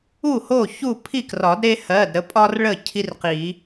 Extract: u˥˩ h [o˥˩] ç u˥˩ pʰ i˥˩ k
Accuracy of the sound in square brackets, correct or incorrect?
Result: correct